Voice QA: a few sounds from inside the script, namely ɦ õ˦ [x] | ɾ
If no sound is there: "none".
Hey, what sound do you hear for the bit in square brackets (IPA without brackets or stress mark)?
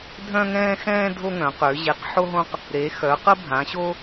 q